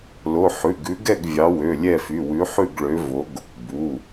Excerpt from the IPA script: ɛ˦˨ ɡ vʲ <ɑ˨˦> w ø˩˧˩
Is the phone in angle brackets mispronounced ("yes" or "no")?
no